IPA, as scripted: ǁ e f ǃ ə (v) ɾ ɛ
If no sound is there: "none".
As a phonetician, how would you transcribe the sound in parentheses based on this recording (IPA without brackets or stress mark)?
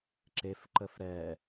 f